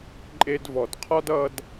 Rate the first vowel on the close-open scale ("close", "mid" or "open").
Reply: mid